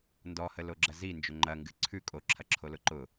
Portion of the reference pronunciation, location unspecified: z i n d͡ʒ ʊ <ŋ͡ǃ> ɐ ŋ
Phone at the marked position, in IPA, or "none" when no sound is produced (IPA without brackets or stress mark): ŋ͡ǃ